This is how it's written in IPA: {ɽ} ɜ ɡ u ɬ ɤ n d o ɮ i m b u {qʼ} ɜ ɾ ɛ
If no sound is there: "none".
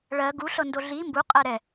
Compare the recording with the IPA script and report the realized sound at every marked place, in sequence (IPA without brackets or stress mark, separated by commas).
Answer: ɭ, qʼ